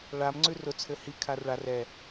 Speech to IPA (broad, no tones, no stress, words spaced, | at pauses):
ɭam ŋ͡ǀʉrʊ t͡sʰɘhi kʰarɭar ɛ